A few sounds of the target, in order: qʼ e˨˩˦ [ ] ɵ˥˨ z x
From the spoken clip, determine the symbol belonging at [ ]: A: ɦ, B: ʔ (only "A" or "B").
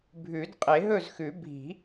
A